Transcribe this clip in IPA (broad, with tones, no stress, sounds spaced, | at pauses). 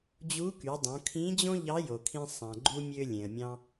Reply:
d͡ʑ u˧˥ k y˩˧ dˤ õ˩˧ kʰ ĩ˧˥ d͡ʑ õ˥ ʎ ɑ˧˥ j o˩ kʰ ĩ˧ sˤ æ̃˩ ɡ͡ǃ u˧ mʲ ø˧ lʲ ẽ˩ ə̯ mʲ ɑ̃˧